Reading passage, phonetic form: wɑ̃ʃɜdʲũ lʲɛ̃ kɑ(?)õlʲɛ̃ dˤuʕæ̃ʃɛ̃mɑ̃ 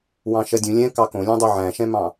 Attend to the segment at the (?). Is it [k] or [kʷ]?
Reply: k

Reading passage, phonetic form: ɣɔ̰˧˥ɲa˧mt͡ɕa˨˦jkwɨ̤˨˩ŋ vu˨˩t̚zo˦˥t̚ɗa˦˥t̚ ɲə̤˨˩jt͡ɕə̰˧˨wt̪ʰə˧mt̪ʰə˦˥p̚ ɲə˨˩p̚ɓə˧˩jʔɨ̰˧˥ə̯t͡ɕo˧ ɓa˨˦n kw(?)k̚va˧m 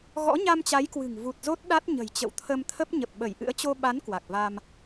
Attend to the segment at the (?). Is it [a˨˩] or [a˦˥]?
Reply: a˨˩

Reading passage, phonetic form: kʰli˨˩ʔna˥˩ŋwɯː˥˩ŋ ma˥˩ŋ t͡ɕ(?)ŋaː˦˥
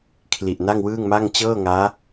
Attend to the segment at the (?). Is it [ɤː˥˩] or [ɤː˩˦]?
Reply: ɤː˥˩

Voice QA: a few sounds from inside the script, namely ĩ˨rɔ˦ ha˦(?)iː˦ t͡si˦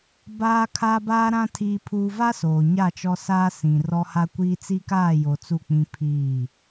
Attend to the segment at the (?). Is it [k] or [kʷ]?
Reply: kʷ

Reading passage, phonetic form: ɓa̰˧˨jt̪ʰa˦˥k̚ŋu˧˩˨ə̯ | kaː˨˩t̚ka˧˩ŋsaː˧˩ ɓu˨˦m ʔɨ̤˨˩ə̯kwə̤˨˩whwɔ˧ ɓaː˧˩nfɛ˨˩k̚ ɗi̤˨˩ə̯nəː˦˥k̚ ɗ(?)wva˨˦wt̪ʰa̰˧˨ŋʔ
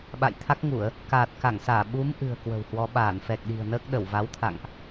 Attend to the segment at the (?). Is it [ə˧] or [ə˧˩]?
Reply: ə˧˩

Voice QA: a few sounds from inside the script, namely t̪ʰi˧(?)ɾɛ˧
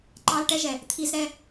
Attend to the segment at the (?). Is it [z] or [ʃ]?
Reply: z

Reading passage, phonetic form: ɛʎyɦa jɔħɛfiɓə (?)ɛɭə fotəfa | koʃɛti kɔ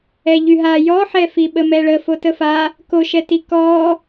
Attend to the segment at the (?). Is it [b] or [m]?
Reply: m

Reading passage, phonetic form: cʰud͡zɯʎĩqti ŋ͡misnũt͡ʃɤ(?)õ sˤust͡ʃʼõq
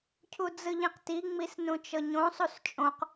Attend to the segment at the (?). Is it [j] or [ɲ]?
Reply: ɲ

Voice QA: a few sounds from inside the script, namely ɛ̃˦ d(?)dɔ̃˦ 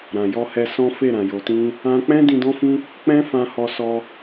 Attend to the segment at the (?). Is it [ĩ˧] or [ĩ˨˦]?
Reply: ĩ˧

